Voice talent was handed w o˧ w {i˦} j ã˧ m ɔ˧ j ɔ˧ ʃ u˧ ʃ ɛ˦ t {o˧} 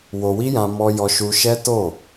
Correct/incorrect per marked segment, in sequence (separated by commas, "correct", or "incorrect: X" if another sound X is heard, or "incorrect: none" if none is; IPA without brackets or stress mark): correct, incorrect: o˦˨